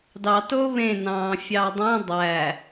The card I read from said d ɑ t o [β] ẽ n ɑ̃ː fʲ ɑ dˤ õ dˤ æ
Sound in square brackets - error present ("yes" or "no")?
no